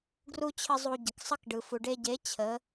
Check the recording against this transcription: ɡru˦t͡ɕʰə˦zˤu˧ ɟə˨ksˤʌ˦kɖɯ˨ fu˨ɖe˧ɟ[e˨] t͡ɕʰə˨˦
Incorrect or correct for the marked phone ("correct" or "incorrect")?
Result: incorrect